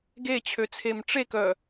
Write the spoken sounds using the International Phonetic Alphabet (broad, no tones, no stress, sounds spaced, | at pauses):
ɡ e t͡ɕʰ ø t͡sʰ e m ʈ͡ʂ e k œ